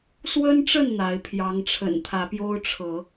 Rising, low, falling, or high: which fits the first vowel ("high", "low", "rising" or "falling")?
high